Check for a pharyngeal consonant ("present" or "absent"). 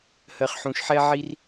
present